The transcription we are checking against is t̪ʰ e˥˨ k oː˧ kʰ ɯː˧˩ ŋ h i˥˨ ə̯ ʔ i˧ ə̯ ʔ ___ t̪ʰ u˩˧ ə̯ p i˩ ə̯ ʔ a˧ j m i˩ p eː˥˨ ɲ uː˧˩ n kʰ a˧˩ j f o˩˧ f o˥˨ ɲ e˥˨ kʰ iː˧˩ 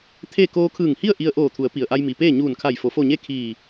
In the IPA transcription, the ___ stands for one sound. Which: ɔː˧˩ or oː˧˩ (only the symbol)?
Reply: oː˧˩